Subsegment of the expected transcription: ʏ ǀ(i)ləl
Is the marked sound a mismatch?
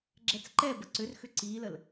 no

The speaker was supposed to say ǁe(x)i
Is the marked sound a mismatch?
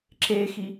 no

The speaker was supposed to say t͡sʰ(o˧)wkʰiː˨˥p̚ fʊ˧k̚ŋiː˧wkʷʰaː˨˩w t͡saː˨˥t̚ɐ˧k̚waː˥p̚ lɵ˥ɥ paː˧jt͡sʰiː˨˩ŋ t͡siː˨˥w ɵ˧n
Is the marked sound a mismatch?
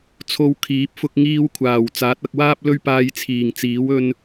no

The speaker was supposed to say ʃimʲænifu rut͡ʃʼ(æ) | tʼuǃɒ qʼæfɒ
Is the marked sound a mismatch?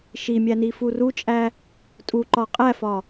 no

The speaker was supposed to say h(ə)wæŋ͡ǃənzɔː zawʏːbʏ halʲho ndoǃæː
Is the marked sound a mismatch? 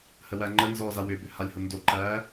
no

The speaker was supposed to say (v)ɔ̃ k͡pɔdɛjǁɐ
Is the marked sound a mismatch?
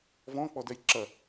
no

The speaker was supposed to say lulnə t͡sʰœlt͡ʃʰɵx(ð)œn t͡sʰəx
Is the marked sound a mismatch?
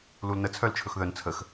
no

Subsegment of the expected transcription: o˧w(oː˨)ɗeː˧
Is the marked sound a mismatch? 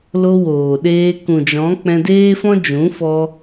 no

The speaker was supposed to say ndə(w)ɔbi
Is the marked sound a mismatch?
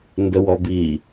no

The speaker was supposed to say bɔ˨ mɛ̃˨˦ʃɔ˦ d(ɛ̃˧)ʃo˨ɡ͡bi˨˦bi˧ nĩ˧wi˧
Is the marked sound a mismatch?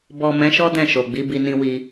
yes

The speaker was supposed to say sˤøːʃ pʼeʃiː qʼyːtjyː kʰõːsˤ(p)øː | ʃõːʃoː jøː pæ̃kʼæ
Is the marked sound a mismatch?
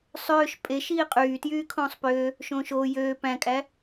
no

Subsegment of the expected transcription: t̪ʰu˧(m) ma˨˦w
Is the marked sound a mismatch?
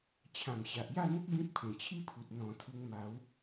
yes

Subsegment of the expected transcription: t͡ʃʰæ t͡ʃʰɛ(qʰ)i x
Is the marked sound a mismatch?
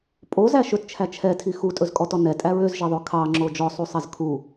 yes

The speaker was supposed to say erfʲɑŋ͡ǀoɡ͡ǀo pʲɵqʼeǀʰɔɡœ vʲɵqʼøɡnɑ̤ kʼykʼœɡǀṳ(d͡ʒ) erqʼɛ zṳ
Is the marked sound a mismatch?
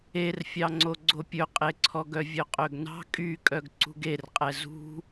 yes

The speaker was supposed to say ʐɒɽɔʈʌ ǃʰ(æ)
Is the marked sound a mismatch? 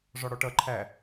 no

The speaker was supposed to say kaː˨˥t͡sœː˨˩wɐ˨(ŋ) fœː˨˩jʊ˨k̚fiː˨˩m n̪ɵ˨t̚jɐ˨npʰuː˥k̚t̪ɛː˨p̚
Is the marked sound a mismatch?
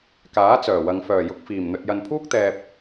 no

